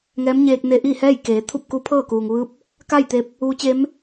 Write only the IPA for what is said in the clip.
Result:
ŋ ɛː˧˥ m ɲ eː˧ k̚ n e˧ ʔ iː˥˨ h ɛː˥˨ j k eː˩˧ t̪ʰ u˥˨ p̚ k u˧˥ pʰ ɤː˥˨ k uː˩ ŋ ʋ ɯː˧˥ p̚ | k a˥˨ j t̪ eː˧ p̚ | ʋ u˧˥ t͡ɕ eː˧˥ m

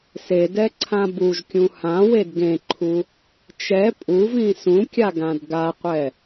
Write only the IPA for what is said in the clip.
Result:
s e d ɛ ǀʰ ã b u ʒ kʲ ũ h ã w e d ɡ ẽ ǃʰ u | t͡ʃ ɛ pʼ u v ĩ s ũ kʲ a ɡ ã d ɡ a qʷ ɛ

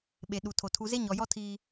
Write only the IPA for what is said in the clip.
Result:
ɓ e˨ ɗ u˨ tʰ o˨ tʰ u˨ z e˦ ɲ ɔ˨ j ɔ˦ tʰ iː˦

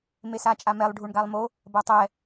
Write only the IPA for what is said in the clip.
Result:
m e s a t͡ʃʼ a m ɛ lˠ ɖʱ u ɳ ɡ a lˠ m o | b ɐ tˤ ɛ

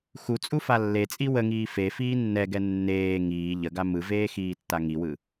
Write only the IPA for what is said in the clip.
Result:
x u t͡sʼ u f a lː e t͡sʼ i w ə ŋ iː f e f iː nː ɛ ɡ ɛ nː eː ŋ iː ʎ ə ɡ a m ɯ v eː x iː tː a ŋ i w ɯ

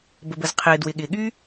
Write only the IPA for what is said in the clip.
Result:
b ə˩ b ə˩ z qʰ ɪː˩ d w ɪ˩ ɠ ɪː˩ ɠ y˥

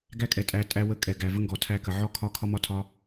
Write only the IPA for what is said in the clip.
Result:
ɡ æ˧ kʼ ɛ˨ tʼ æ˨ tʼ æ˧ w ə˧ kʼ ɛ˨ ɡ æ˨ v ə˦ ŋ ɡ ɔ˨ tʰ æ˧ k ə˨ ʕ ɔ˦˨ kʰ ɒ˦ kʰ ɒ˦ m ɒ˦ tʰ ɒ˦

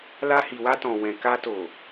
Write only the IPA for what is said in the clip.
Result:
l a˧ h i˨ w a˧ t ɔ̃˨ w ɛ̃˨ k a˧ t o˨

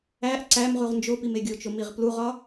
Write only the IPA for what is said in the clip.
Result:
æ ʔ ǀ æ m ʁ u ʁ n d͡ʒ o p i m e ɡʲ o t͡ʃ o m i ʁ p l u ʁ ɒ

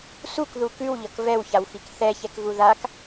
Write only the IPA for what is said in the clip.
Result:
s u k ð u k ʉ w ʎ ʌ k v ɛ w ç a w x i k θ ɛ ç ɛ k ɣ u ð a k

